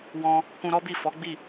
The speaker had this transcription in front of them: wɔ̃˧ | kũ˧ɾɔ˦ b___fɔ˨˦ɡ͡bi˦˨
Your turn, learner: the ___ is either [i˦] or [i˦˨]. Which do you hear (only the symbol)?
i˦˨